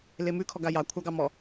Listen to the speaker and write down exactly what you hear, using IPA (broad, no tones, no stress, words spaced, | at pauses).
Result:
lemʉ kʰɔɡajɑ kʷʰɑɡɑmɔ